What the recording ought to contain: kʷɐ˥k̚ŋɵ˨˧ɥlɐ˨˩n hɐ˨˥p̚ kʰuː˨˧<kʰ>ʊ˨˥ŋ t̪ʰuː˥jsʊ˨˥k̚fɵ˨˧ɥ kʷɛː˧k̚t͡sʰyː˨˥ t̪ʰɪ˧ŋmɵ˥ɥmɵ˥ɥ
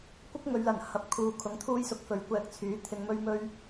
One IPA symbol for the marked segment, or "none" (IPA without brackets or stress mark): kʰ